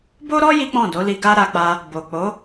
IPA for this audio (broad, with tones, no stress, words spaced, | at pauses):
bo˦ɾɔ˦ ji˦k͡pɔ̃˦˨do˨˦li˧ ɡa˦ ɾa˧k͡pa˧ | bo˨k͡po˨˦